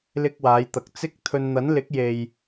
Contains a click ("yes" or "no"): no